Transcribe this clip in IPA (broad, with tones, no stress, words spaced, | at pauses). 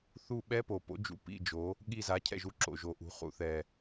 θu˦˨ ɓɛ˦˥po˨˩po̰˨˥d͡ʒṵ˨˩ pḭ˧˥˧d͡ʒo˨˥ | ɠi˦˨za˨˥cʰɛ̰˦˨ʒ u˧˥˧ǁo̰˨˩ʒo˨˥ʔṳ˨˥ χṵ˨˩θɛ˨˩